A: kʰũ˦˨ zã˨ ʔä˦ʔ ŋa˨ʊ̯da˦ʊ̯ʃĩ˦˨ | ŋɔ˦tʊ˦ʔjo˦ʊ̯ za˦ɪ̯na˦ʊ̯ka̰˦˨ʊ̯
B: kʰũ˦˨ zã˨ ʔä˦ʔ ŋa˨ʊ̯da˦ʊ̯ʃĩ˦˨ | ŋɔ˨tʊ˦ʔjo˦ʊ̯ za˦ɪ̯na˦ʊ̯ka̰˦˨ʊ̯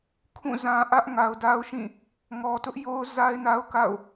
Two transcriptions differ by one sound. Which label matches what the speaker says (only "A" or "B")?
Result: B